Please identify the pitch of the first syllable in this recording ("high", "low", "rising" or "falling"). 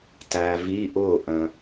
low